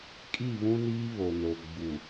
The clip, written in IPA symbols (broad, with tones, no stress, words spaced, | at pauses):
kʼi˦˨βũ˦niː˦ βo˨no˨ ɡ͡bu˨